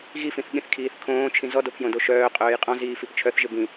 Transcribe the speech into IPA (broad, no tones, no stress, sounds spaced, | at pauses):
ɣ i f ĩ θ ɠ ĩ θ kʰ iː θ kʰ õː t͡ʃʰ ĩ z ɔ d o pʰ j õ d o ʃ œː qʼ œː j qʼ ɔ̃ z iː f i p t͡ʃʰ œ θ ʒ ɪ b ĩ